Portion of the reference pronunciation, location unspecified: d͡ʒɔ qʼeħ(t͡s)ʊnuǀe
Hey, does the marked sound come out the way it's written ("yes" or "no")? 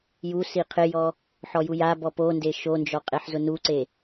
no